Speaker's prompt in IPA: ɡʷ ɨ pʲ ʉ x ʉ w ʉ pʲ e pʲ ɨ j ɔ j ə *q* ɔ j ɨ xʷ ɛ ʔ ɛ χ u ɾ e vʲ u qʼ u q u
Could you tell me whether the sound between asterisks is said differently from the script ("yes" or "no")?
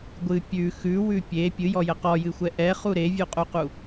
no